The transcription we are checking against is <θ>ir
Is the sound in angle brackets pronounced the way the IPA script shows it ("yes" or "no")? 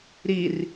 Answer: no